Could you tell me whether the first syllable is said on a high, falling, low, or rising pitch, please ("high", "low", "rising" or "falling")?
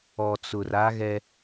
low